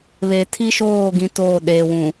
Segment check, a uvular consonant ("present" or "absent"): absent